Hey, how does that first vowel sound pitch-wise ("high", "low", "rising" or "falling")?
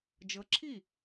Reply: rising